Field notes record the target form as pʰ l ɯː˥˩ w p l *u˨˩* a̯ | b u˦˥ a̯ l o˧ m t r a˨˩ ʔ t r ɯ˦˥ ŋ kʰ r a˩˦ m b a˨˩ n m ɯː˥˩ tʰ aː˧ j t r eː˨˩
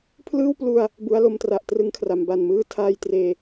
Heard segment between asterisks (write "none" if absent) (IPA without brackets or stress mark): u˧